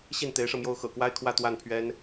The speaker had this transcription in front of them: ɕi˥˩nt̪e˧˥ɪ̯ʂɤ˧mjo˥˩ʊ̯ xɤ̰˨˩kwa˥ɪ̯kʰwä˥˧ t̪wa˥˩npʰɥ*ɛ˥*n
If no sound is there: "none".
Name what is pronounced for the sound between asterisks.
ɛ˥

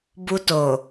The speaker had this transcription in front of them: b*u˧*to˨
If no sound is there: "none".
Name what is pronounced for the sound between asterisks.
u˧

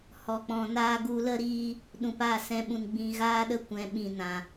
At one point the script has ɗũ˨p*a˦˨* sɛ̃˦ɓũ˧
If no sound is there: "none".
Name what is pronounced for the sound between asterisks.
a˦˨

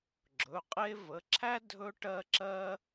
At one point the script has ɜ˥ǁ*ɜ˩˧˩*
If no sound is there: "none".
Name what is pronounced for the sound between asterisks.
ɜ˥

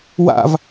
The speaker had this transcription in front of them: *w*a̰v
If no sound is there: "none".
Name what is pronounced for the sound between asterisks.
w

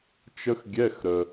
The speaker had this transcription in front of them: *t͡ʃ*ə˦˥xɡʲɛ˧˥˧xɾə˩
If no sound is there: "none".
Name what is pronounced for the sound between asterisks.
t͡ʃ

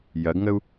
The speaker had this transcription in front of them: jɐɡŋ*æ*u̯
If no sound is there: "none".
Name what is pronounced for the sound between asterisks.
ə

